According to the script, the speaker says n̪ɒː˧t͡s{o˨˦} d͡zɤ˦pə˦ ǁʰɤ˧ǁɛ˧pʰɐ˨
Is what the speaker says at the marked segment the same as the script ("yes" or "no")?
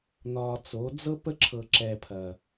yes